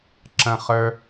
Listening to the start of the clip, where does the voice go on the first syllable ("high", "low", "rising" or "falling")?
high